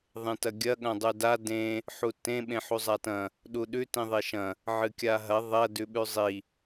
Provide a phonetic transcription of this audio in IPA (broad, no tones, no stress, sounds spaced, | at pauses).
ðˤ ẽ t ɐ ɡʲ ɐ ɠ ɐ̃ dˤ ʉ d a d ẽ | ħ u t ẽ ɓ ẽ ħ u zˤ a t ɐ̃ | ɗ u ɗ ʉ t ĩ ðˤ e ʃ ɐ̃ | ʕ ɨ kʲ a ɦ ɐ ðˤ ɐ d ʉ ɓ ʉ zˤ i